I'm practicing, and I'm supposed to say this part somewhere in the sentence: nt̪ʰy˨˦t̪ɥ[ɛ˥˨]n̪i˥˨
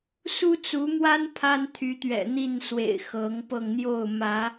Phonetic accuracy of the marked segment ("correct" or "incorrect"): incorrect